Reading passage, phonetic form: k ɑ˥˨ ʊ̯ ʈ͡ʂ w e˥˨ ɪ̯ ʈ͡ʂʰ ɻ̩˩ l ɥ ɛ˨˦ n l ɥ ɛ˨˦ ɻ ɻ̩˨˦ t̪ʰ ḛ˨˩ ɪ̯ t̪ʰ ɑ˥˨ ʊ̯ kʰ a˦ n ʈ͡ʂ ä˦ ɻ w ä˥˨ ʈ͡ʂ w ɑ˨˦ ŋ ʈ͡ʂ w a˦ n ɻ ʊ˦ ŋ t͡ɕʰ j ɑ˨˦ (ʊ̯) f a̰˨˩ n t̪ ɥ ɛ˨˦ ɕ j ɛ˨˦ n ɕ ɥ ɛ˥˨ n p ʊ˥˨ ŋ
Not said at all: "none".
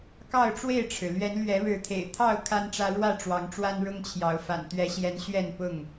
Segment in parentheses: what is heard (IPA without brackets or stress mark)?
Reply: ʊ̯